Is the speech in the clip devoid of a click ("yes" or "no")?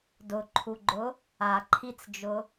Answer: no